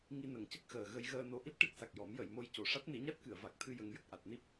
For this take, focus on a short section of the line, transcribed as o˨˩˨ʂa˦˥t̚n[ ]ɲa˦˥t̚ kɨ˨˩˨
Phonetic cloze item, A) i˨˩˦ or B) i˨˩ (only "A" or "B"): A